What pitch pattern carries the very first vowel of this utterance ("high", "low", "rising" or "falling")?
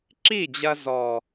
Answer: falling